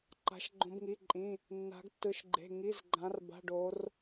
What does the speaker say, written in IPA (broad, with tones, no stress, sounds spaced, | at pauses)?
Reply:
ǃ a̤˩˧ ʃ ɡ͡ǃ õ˩˧ b ŋ i˩˧˩ ǃʼ ĩ˩˧˩ | nː a̤˩˧ ɡ tː ɯ˩˧ ʃ ɡ͡ǃ e̤˩˧˩ ŋ i˩˧˩ z ɡ͡ǃ ã˩˧ r b a̤˩˧˩ ɖ o˩˧ r